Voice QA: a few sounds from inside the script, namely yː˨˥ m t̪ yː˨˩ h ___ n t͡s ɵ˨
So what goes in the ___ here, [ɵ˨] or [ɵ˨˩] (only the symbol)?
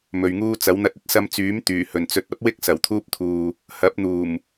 ɵ˨˩